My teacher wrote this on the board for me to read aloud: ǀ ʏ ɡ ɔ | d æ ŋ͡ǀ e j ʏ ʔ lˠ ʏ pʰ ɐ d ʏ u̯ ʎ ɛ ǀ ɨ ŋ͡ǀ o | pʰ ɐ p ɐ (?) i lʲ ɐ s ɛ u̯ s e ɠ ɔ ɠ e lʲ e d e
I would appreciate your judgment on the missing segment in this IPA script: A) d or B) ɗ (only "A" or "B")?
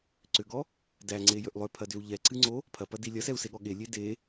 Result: A